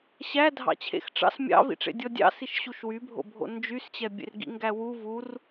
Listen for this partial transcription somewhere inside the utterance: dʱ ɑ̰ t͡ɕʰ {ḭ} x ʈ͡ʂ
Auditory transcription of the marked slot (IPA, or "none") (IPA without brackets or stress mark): ḛ